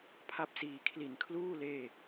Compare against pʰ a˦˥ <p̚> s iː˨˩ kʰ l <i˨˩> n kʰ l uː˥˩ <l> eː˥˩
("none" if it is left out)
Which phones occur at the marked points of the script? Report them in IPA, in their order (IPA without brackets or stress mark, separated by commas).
p̚, i˨˩, l